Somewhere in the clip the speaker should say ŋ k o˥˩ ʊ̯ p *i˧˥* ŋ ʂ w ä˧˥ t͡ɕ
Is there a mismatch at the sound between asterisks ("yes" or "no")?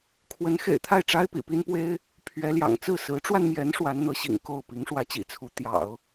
no